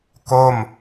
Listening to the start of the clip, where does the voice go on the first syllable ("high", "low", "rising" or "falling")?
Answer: falling